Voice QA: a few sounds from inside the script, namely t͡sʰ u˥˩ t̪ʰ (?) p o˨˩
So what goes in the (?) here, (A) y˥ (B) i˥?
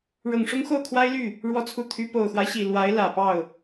A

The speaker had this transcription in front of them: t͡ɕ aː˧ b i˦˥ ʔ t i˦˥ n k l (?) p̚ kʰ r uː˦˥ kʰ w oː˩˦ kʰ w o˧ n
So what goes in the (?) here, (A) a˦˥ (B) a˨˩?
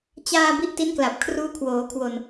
B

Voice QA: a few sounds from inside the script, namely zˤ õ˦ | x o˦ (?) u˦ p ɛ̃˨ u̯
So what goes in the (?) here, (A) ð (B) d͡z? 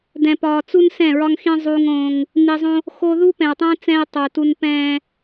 A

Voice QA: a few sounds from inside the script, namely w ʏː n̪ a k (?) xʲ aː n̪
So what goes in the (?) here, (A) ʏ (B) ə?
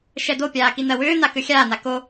A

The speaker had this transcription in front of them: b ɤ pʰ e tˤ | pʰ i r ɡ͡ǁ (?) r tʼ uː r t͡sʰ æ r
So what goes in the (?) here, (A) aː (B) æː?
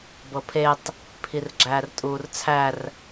B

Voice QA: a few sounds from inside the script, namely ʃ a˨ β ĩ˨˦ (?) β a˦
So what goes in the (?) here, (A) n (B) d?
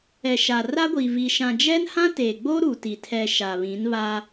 A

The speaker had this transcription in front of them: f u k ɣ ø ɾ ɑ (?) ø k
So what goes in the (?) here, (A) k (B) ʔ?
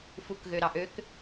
B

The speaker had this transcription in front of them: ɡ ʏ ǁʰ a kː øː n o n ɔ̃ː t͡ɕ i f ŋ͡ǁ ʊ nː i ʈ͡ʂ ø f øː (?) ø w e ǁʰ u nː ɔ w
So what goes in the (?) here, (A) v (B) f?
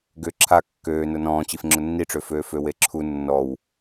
B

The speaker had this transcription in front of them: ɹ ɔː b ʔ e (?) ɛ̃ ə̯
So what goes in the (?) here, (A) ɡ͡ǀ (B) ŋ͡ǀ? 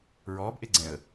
A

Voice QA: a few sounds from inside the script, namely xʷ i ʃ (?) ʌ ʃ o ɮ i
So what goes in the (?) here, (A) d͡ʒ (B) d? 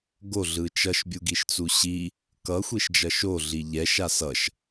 A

